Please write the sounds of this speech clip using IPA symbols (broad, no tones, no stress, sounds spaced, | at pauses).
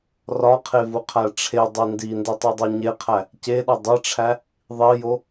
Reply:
r ɒ qʰ e v u qʰ æ ʈ͡ʂʰ e dˤ i n d i n d i tˤ i dˤ u ɲ e qʰ æ | c e ɗ ɒ dˤ e ʈ͡ʂʰ æ | ðˤ i j o